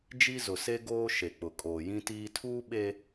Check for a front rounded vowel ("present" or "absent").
absent